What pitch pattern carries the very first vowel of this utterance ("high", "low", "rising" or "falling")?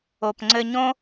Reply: low